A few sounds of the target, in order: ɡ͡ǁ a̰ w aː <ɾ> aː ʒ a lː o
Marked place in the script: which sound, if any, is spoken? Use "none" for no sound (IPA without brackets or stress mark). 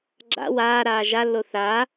ɾ